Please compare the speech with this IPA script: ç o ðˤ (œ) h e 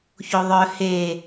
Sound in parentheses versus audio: correct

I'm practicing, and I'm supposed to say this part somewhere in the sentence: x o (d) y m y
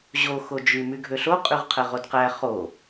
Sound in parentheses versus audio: incorrect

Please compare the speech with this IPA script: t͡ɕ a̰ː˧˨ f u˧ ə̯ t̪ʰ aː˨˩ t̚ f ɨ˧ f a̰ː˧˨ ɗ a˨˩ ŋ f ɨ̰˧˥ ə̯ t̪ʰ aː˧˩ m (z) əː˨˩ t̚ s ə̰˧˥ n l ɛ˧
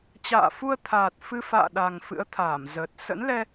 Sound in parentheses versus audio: correct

